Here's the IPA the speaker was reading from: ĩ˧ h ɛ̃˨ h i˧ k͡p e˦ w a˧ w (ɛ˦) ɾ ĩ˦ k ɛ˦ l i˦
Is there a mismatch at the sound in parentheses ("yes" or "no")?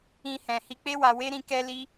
yes